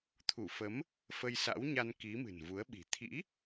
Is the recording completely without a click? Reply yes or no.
yes